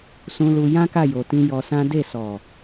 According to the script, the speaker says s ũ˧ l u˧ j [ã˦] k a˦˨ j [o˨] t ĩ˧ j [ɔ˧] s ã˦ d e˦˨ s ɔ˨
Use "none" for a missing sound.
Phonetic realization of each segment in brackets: ã˦, o˨, ɔ˧

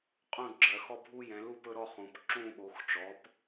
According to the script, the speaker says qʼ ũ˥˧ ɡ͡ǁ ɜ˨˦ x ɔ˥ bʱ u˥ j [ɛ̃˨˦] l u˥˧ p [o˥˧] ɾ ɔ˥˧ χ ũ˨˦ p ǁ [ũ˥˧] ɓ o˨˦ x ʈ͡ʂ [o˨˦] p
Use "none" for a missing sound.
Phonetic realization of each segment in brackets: ɛ̃˨˦, ɵ˥˧, ũ˥˧, ɔ˨˦

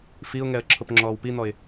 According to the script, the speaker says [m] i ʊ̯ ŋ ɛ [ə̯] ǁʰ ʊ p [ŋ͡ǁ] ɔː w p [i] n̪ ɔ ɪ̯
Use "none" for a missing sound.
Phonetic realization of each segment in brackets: f, ə̯, ŋ͡ǁ, i

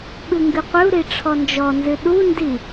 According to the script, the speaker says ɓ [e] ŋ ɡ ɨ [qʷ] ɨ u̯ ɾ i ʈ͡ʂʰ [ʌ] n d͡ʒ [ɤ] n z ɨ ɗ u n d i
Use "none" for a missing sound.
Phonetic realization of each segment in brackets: ɨ, qʷ, ɔ, ɔ

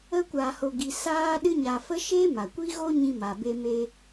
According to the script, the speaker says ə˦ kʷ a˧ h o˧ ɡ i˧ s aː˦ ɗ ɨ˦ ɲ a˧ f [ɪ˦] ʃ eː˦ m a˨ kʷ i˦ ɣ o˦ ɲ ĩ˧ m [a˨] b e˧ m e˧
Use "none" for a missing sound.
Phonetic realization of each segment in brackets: ə˦, a˨

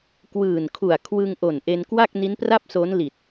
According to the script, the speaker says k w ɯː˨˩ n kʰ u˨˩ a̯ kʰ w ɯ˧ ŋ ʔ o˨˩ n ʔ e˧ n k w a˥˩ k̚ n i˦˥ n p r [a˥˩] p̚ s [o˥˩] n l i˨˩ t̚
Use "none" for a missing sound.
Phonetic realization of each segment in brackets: a˥˩, o˦˥

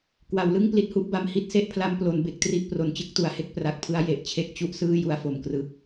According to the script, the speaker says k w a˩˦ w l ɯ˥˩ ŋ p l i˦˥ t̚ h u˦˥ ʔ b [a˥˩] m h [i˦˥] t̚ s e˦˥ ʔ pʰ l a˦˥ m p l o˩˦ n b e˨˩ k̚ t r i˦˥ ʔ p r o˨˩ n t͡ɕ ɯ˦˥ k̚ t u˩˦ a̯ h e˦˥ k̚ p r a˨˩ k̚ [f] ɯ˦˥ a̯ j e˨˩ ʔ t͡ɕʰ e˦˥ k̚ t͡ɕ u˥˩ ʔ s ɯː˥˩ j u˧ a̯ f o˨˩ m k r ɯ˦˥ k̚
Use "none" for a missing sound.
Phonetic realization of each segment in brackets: a˧, i˦˥, pʰ

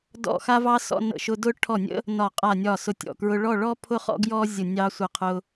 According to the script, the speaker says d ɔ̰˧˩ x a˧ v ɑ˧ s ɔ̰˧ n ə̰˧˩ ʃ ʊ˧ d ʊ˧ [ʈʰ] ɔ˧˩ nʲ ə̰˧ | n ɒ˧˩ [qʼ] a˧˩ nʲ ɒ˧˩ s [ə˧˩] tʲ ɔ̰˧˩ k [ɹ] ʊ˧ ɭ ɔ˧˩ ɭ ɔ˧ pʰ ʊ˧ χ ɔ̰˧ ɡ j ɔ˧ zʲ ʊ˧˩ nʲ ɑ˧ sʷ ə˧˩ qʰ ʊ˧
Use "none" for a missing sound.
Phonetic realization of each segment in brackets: ʈʰ, qʼ, ʊ˧˩, ɹ

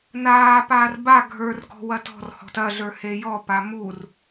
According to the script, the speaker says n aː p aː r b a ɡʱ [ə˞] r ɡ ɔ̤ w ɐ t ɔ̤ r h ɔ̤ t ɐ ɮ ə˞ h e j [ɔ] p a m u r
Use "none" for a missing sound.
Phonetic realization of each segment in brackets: ə˞, ɔ

